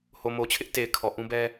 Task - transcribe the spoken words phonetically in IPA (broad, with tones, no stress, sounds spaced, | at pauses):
h o˨ m o˨ t͡ɕʰ ɪ˦ ʔ t e˨ ɪ̯ kʰ ɔ˨ ʔ ũ˦ b ɛ˦